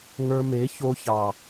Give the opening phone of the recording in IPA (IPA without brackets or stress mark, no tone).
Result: ŋ